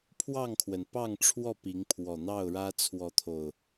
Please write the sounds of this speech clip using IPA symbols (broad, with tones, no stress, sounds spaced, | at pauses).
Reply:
pʰ w ɑ˥˨ ŋ kʰ w ə˩ n p ɑ˥˨ ŋ ʈ͡ʂʰ w ɔ˥˨ p i˨˦ ŋ pʰ w ɔ˨˩ n̪ ɑ˥˨ ʊ̯ ɻ ä˦ t͡sʰ w ɔ˨˦ t̪ʰ o˨˩ ʊ̯